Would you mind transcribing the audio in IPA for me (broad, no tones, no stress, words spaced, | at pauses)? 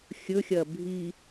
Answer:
xʲɵxʲɐ bʱi